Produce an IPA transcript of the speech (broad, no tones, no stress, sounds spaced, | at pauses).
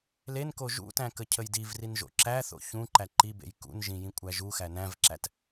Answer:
l e n k o ʒ ṵ t æ̃ k ə cʰ ə j d i v r i n ʒ o̰ ǁ æ θ o̰ ç ũ ǃ æ ǃ i b ḛ j k ṵ n ʒ ĩ j ĩ kʷʼ æ ʒ u x æ n æ̃ v ǁ æ t